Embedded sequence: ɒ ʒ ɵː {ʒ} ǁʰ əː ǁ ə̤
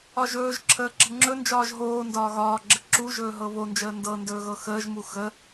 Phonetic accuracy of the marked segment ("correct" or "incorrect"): correct